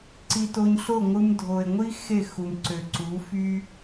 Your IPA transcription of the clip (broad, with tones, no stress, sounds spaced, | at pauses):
ǀ i˧ t o˧ ɲ ɬ o˦˨ ŋʷ ɯ˧ m dʱ o˨ e̯ ŋʷ i˦ x e˦˨ x u˨ m ǀ ø˨ ǀ u˨˦ f y˦